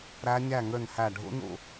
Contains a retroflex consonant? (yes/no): yes